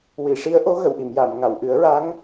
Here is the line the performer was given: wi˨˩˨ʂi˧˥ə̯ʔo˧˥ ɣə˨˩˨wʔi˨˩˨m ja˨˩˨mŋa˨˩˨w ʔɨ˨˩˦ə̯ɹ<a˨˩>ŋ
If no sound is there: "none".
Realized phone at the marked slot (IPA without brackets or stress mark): a˧˥